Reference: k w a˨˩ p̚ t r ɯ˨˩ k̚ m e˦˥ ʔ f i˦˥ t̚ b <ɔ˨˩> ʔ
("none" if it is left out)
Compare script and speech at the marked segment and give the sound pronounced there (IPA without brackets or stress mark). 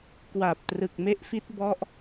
ɔ˦˥